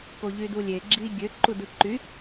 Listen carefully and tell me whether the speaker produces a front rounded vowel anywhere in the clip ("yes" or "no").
yes